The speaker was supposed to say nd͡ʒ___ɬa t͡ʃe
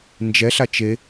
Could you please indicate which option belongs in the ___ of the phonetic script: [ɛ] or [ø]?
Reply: ɛ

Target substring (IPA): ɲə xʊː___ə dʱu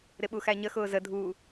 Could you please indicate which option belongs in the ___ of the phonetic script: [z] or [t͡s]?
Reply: z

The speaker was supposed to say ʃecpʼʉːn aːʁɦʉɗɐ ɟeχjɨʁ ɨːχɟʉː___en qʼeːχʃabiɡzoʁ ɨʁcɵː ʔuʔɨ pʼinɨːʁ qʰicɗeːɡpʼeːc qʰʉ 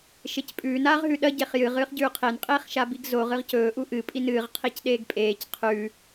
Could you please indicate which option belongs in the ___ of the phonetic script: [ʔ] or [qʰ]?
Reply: qʰ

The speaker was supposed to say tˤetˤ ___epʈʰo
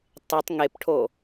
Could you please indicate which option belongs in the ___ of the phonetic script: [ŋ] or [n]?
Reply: ŋ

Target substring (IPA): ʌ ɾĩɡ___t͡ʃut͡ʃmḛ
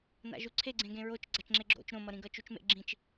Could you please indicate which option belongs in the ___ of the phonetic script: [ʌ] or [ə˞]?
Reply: ʌ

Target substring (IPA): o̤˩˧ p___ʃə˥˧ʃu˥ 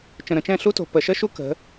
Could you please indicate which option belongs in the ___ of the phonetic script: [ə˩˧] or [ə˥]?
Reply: ə˩˧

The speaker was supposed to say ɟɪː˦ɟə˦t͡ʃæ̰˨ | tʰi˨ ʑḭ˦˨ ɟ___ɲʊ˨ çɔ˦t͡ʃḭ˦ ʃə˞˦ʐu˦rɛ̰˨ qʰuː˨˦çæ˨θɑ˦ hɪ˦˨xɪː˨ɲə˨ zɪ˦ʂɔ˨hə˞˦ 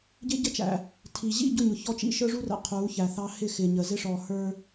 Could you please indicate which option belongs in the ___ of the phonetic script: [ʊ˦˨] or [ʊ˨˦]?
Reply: ʊ˦˨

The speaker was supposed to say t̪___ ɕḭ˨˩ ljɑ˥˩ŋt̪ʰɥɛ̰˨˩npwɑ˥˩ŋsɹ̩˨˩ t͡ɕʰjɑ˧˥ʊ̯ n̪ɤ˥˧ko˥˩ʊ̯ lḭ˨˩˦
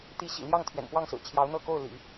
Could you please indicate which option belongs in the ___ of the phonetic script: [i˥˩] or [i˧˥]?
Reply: i˧˥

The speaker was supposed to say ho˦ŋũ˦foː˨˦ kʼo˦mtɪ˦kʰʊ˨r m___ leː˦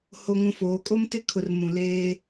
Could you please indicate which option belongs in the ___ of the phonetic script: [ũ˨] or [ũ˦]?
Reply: ũ˨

